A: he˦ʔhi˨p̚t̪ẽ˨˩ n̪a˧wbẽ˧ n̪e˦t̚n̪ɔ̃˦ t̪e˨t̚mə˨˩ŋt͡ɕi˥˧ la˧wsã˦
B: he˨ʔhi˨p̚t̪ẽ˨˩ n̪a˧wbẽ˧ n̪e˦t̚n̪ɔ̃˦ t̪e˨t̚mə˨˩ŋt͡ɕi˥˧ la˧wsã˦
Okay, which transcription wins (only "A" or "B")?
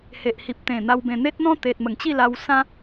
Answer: B